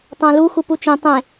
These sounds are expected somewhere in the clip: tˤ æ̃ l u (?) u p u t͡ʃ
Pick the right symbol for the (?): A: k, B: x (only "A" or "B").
B